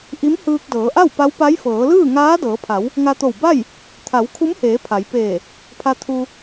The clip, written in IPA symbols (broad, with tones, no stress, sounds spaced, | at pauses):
ʔ i˧˥ m h ɯː˧ k̚ d ɤː˩˧ ʔ a˥˨ w p a˧˥ w p a˧˥ j f ɤː˩˧ l ɯː˥˨ ŋ aː˧˥ d ɤː˩˧ pʰ a˩˧ w | ŋ a˧ t̪ o˧˩ w b a˥˨ j | t̪ʰ a˩˧ w kʰ u˧˥ m h eː˩˧ pʰ a˩˧ j p eː˧˩ | pʰ a˧ t̪ʰ u˧